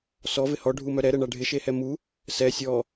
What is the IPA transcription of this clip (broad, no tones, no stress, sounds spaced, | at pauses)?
s ɔ v ɪ h ɔ ɖʱ u m œ ɾ ɛ ɾ ɛ ɳ a ɖʱ ɪ ʃ e h ɛ m u | s ɛ sʲ ɔ